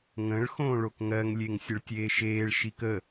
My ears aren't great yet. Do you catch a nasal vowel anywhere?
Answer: yes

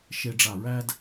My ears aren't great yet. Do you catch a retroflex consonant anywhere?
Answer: yes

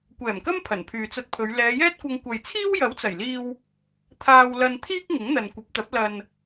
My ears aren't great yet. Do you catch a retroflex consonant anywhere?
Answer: no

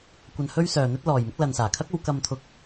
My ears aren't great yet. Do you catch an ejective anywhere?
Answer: no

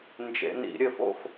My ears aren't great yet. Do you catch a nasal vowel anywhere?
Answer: no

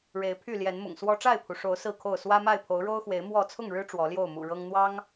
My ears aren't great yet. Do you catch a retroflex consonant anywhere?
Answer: yes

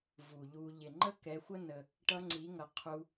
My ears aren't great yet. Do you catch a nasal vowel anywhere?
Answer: no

